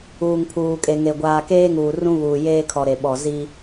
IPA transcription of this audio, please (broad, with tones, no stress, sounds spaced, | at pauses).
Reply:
uː˨ ŋ pʰ uː˨ kʼ e˨ ŋ e˨ ɡʷ aː˨ k eː˦ ŋ uː˨ r ũ˦ β uː˨ j eː˦ kʰ ɔ˨ ɾ e˨ ɓ ɔ˨ z i˦